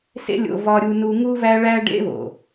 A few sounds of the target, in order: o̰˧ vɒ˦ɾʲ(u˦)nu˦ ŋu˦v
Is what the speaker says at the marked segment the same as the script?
yes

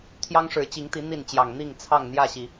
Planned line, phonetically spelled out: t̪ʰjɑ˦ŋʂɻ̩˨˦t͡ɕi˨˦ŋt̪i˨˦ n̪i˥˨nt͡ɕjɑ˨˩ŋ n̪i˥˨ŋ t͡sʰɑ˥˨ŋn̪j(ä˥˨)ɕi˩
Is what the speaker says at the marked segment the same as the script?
yes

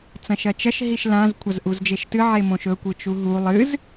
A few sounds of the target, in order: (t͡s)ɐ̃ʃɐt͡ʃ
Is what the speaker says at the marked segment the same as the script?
yes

